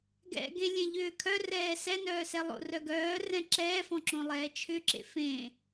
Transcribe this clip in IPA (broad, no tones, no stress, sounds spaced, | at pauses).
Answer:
ɡ ɛ̰ ɡ ẽ lʲ ẽ ʎ ʏː kʰ œ r ɛː s ɛ n œː s ɛ lˠ o̰ r œ ɡ œː r ɛ̃ ǁ ɛː f ɔ̃ ǁ õ lˠ ɛː t͡ʃʰ ʏ ǁ ḛ f ẽ